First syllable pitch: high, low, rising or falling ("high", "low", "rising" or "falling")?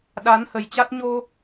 rising